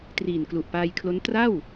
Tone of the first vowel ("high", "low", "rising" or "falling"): low